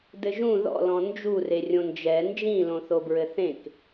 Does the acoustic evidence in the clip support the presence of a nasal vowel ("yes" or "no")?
yes